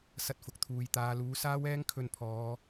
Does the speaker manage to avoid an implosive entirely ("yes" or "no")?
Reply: yes